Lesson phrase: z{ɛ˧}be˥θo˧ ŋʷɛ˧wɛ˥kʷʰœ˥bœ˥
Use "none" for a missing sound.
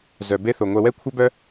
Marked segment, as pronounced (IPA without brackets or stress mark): œ˧